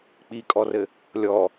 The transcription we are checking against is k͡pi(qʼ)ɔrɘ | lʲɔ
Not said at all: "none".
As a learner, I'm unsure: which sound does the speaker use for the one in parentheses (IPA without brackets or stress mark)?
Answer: kʼ